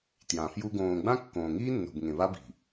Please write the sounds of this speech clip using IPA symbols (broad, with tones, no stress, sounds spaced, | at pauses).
t j ã˨ f j u˦ ɡ õː˨ ɡ͡b ã˦ kː õː˨ ŋ iː˦ nː o̤˨ b ŋ ẽ˨ β a˦ b i̤˨